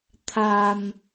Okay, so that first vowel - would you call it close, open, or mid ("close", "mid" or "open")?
open